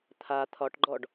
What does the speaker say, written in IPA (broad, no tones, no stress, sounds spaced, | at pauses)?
t̪ʰ a t̪ʰ ɒ ʈ ɡ͡ǃ ɔ ɖ